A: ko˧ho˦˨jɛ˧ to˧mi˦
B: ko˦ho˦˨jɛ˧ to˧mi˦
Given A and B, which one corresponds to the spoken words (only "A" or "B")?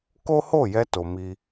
B